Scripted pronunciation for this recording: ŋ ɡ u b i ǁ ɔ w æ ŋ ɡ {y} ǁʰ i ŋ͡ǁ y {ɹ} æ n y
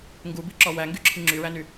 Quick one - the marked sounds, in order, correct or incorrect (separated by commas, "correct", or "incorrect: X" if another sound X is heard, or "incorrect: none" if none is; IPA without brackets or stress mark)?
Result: correct, correct